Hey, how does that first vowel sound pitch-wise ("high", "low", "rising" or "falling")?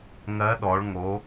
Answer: rising